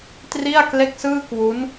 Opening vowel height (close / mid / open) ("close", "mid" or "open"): close